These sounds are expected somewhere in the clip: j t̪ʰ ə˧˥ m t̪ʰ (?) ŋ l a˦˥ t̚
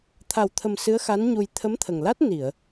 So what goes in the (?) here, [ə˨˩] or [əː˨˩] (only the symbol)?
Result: ə˨˩